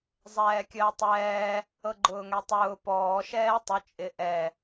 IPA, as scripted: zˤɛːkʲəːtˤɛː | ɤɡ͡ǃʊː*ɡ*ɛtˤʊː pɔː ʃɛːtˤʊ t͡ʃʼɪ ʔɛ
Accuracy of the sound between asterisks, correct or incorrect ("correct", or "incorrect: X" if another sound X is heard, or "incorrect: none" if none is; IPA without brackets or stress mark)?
incorrect: ŋ